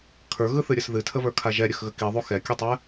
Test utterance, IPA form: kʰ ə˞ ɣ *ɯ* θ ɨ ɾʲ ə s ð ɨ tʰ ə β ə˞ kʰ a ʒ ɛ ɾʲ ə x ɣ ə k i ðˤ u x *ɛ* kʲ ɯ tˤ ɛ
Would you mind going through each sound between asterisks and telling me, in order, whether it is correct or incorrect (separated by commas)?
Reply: correct, correct